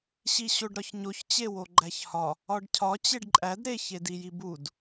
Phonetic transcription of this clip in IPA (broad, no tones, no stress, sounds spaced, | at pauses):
ɕ i ɕ o ɖ ɾ ɒ ç ɲ o ç t͡ɕ e w o ɡ͡ǃ æ ç h ɒ | ɒ ɖ cʰ ɒ t͡ɕ e ɖ ǃʼ æ d ɾ e ç e d i j i b u d